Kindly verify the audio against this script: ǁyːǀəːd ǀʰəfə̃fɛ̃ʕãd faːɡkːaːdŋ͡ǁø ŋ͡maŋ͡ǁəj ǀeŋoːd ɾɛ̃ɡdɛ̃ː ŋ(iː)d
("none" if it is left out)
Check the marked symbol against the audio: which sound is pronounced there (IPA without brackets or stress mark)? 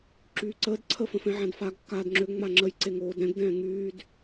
yː